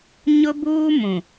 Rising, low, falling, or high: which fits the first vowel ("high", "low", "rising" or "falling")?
high